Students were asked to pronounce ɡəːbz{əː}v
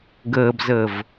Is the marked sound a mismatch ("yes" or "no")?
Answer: no